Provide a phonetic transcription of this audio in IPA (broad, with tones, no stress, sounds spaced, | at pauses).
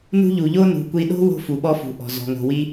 n ṳ˦ ʎ u˩ ʎ o˥ n ṳ˩ kʷ i˨ ɗ o̤˥ w o̤˥ f u˩ ɓ ɔ˦ f ṳ˩ ʔ ɔ̤˩ z ɔ̤˩ ŋ o̤˩ w i˥